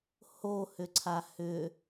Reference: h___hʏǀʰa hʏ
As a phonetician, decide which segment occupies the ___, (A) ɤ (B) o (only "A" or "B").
B